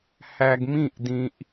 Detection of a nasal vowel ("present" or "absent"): present